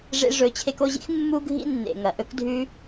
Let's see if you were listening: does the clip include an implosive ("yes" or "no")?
no